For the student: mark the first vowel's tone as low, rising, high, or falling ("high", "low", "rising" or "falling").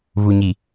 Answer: low